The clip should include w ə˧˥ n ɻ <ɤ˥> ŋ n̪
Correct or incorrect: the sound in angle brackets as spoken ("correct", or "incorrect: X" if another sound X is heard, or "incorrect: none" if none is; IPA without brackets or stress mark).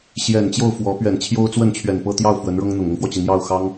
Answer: correct